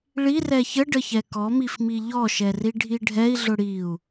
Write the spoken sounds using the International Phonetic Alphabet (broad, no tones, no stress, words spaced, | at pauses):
ɭirɛ çəɖəçɛ kɔmifmi ʎɔʃɛriɖʱi ɖʱɛi̯ɮʊ ɽiu̯